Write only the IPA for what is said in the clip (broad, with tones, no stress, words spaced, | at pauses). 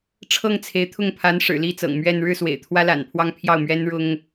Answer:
ʈ͡ʂʰɤ˥˩ŋt͡sʰe˧˥ɪ̯t̪ʰʊ˥˩ŋ pʰa˧˥nʂɻ̩˨˩li˥˩t͡sɤ̰˨˩ŋ mɥɛ˥˧n ɻɻ̩˥˩swḛ˨˩ɪ̯ t̪ʰwä˥la̰˨˩npʰwɑ˥˧ŋ pʰjɑ˥˩ʊ̯mɥɛ˥nɻʊ˥ŋ